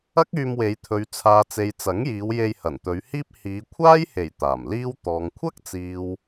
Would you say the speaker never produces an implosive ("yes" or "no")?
yes